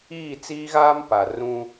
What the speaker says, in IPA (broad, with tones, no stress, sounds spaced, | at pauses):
iː˦˨ t͡s iː˦ ɣ aː˦ m p a˨ r ũ˦